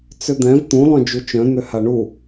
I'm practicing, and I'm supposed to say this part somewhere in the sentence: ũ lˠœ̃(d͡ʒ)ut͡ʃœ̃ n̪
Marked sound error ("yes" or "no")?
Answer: no